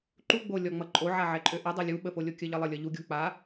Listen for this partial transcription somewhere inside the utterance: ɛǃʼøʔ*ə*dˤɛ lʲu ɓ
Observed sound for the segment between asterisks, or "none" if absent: ə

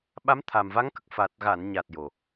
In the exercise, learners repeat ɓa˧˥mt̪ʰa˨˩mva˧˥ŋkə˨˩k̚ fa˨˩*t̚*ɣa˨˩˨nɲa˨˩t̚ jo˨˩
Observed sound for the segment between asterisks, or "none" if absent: t̚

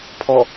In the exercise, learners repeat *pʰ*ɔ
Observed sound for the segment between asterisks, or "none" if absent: pʰ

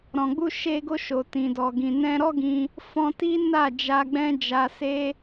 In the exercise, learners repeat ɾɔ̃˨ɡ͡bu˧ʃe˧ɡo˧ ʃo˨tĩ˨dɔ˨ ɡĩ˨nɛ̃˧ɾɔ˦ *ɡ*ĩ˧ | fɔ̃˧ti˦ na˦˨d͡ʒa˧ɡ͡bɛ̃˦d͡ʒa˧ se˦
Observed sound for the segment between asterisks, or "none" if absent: ɡ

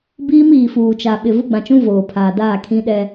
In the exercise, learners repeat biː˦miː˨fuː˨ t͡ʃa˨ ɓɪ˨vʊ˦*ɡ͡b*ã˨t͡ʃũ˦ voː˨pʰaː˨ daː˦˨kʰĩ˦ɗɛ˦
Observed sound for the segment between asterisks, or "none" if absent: ɡ͡b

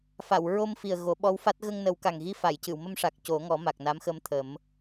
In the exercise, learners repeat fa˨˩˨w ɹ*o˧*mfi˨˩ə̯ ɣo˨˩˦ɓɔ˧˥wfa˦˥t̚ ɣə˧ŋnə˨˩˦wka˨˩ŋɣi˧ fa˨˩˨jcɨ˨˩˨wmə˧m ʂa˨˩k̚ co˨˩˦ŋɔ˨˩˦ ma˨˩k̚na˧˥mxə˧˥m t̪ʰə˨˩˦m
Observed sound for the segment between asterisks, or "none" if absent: o˧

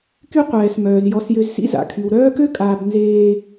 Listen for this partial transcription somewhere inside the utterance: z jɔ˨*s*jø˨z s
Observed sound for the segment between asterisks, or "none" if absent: s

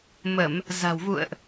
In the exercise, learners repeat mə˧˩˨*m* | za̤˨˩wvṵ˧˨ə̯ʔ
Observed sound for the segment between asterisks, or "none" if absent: m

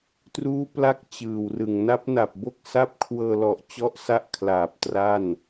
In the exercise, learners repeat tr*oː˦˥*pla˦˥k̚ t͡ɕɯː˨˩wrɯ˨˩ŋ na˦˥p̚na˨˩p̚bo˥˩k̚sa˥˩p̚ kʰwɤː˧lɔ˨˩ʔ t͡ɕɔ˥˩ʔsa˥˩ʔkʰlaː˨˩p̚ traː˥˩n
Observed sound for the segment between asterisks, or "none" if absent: uː˦˥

